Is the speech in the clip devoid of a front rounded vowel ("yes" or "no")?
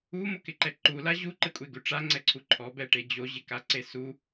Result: yes